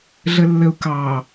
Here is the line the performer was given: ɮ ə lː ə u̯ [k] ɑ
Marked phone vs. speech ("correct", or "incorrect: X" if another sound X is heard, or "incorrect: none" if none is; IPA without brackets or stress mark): correct